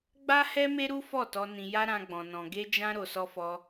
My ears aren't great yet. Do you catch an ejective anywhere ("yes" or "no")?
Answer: no